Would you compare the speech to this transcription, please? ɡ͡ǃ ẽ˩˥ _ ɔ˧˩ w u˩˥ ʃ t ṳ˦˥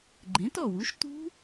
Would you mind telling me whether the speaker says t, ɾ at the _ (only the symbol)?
t